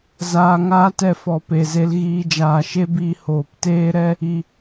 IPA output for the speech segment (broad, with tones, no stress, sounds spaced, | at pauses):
z aː˧ ŋ aː˦ t ɛ˧ f ɔ˨ p e˨ z e˧ l ɣ iː˧ d͡ʒ aː˨ ʃ e˦ b iː˧ h oː˨ p t eː˦ ɾ ɛ˦ | i˨